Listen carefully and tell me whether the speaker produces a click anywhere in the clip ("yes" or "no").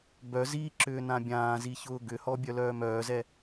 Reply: yes